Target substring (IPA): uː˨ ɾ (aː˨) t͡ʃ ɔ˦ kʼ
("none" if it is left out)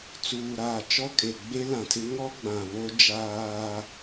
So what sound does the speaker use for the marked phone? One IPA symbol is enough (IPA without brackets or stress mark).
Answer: aː˨